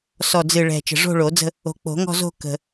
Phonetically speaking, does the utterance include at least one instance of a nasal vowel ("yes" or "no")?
no